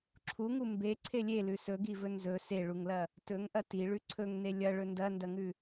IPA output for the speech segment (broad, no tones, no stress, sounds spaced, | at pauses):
ǁʰ u ŋ u m b e ǀʰ e lʲ e l ʉ s ɵ ɡ i v ɵ n z ɵ s e ɭ u ŋ l ɐ | t ɵ ŋ ʔ ɐ t i ɭ ʉ ǀʰ ɵ ŋ n e lʲ ɐ ɭ ɵ n d ɐ n d ɐ ŋ ʉ